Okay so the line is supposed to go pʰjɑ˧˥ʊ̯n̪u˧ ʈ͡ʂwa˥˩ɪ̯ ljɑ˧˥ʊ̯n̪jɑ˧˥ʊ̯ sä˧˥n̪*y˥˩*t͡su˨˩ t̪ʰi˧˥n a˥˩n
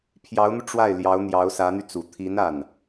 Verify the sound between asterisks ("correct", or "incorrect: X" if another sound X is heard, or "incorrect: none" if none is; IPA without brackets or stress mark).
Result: incorrect: y˧